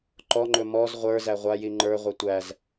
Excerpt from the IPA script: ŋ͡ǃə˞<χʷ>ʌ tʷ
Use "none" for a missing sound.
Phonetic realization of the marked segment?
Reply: ʁʷ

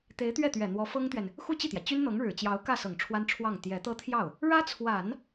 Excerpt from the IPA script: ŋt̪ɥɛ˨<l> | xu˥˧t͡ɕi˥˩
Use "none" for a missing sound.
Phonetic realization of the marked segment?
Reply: n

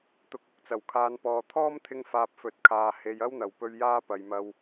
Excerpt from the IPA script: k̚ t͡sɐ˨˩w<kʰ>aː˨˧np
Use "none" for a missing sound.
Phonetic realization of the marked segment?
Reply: kʰ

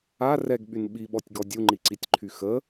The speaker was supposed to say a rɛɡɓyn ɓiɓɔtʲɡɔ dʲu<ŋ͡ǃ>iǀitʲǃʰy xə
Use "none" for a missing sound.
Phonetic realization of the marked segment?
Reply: ŋ͡ǃ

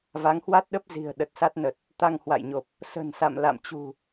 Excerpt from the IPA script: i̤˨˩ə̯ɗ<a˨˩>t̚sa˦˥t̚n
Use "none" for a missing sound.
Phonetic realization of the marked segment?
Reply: ə˨˩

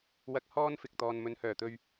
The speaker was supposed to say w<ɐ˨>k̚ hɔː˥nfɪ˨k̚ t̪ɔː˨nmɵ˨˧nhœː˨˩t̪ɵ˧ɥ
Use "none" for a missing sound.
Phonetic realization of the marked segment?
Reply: ɐ˧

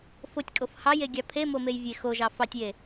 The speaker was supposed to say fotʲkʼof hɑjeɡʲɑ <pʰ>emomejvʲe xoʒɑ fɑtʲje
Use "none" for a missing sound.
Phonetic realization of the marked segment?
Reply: pʰ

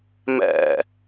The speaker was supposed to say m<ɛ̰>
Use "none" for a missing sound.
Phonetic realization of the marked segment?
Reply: ɛ̰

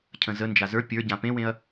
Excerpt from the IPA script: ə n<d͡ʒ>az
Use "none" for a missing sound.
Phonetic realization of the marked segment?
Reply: d͡ʒ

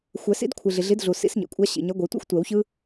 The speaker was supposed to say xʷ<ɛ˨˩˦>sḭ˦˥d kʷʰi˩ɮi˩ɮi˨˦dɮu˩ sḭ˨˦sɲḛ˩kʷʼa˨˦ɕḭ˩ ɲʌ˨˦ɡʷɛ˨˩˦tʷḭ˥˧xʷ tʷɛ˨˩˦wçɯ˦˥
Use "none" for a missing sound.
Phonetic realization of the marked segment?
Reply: ɛ˨˩˦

